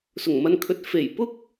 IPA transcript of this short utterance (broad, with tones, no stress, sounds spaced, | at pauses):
s ʊ˨˩ ŋ m ɐ˧ n kʰ ɵ˨˥ t̚ f e˨˩ j p ʊ˥ k̚